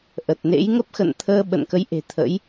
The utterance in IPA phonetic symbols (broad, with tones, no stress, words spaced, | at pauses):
ʔə˨˩t̚nḛ˧˥j ŋə˦˥p̚xə̰˧˨nt̪ʰəː˧ ɓə̰˧˨nkə˨˦jʔe̤˨˩t̪ʰə̰˧˥j